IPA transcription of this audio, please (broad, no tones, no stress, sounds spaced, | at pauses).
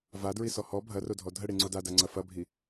v a d ɹ i s ɔ h ɔ bʱ ɐ r o dʱ ɔ dʱ ə ɽ i ŋ͡ǀ o d a d a ŋ͡ǀ ɐ f ɐ bʱ i